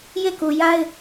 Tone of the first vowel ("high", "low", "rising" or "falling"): falling